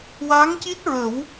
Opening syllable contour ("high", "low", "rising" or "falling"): rising